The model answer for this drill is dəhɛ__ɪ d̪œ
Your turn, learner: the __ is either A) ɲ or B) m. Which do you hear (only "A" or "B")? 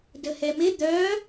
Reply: B